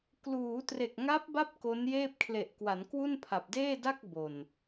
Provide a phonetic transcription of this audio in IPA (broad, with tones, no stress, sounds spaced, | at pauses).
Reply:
k l uː˩˦ t r e˨˩ k̚ ŋ a˦˥ p̚ b a˦˥ p̚ k o˦˥ n j eː˥˩ p̚ kʰ l e˨˩ ʔ k w a˩˦ n k w u˥˩ n pʰ a˨˩ p̚ d eː˥˩ d a˥˩ k̚ b o˨˩ n